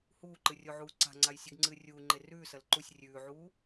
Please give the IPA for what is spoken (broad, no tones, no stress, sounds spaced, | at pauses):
h uː ǃ ɨ rʲ o ʕ uː ǀ a̤ ŋ͡ǀ a j sʲ ɨ ɡ ŋ͡ǀ ɨː rʲ uː ŋ͡ǃ e r ʉː s ɐ l ǃ u sʲ rʲ ʉː ʕ uː